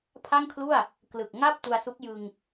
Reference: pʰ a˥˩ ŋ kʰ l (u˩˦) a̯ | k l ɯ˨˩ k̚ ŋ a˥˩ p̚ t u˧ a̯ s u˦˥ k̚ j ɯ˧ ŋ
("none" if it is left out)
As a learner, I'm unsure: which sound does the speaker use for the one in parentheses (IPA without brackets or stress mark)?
u˥˩